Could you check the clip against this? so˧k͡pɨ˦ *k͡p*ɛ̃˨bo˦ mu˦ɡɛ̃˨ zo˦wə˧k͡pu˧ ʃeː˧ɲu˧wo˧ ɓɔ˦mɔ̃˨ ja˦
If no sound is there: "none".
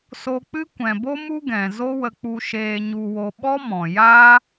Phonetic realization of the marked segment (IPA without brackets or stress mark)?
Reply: kʷ